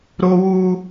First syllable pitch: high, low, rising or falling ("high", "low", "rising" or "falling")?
high